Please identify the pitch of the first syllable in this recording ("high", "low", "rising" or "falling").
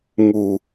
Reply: low